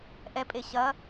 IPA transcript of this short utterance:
ʔ ɛ pʼ e ɕ ɐ

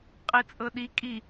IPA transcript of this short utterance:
qʼ i t͡sʼ ɤ ɗ i kʼ i

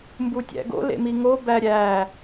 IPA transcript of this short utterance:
m b u tʲ æ̰ ɡ o̰ l ḛ m i ŋ o b æ ɾʲ æ

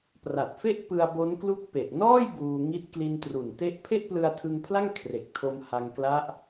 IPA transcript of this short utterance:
p r a˨˩ t̚ f e˥˩ ʔ p ɯ˧ a̯ b o˦˥ n k l u˥˩ k̚ p e˨˩ ʔ n ɔː˥˩ j b uː˧ ŋ i˦˥ t̚ k l i˧ n t r u˨˩ n t e˥˩ ʔ pʰ e˥˩ ʔ p l ɯ˧ a̯ tʰ ɯ˧ ŋ pʰ l a˥˩ ŋ kʰ r e˨˩ k̚ tʰ o˧ m h a˧ ŋ k l a˦˥ ʔ

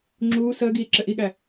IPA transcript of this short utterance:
ŋ͡ǁ uː s əː ɡ iː ǁ ɘ ʔ i ɠ æ

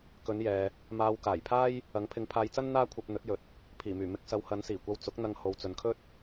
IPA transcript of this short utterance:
k ɵ˨˧ n j ɛː˨ | m aː˧ w k aː˨˩ j pʰ aː˥ j | ɐ˨˥ ŋ pʰ ɪ˨˧ ŋ pʰ aː˧ j t͡s ɐ˥ n n̪ aː˥ kʷʰ ɐ˧ p̚ n̪ ɵ˨˥ t̚ j ɵ˨˥ t̚ | pʰ iː˨˩ m yː˨˩ m ɪ˧ k̚ s ɐ˨˧ w h ɐ˨˧ n s iː˨˩ kʷ ɐ˧ w t͡s ʊ˨˥ k̚ n̪ ɐ˧ ŋ h o˨ w t͡s ɵ˨ n kʰ ɵ˥ t̚

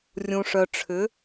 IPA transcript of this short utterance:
rʲ ũ˨ ʂ œ˨ ʈ͡ʂʰ ʏ˨˦

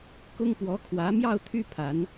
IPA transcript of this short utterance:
k ʊ˥ ŋ p w ɔ˧˥ kʰ w ä˧˥ m j ɑ˥˧ ʊ̯ t̪ʰ y˥˩ pʰ a˧˥ n

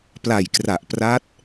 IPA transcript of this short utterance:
p l a˨˩ j k r a˨˩ ʔ p r a˦˥ t̚

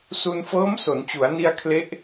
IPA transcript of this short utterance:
s u˧ n f ɤː˦˥ m s o˩˦ n t͡ɕ u˩˦ a̯ n i˧ a̯ kʰ l e˦˥ ʔ

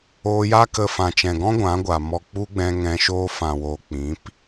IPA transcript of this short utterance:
oː˧ j a˦ k ə˧ f ã˨ t͡ʃ ɛ̃˨ ɡ ɔ̃˦ ɡʷ ã˨˦ ɡʷ a˨ m ɔ˧ k͡p u˦ ɡ͡b ɛ̃˧ ŋ ɛ̃˧ ʃ oː˧ f ã˨ w oː˨ k͡p ĩ˨˦ p

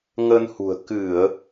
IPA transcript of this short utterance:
ŋ ə˧ n h ṳ˨˩ ə̯ k ɨ˧˩˨ ə̯

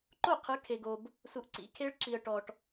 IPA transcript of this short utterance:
ǃ o˥˩ qʰ ɯ˨˥ kʰ e˨ ɡ o˨ b | s u˨ ʔ ǀ ḭ˨˥ kʰ e˦˥ ɭ ǁ i˨ ə̯ ʈ ɔ˨ ʈ

